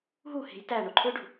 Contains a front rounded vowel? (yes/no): yes